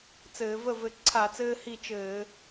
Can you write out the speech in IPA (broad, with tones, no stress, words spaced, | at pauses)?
t͡sɘː˧˩˧ və˥˩vɘ˧˩ ǀʰa˧˩˧t͡sɘː˧hi˧˩ t͡ʃɘː˧˩˧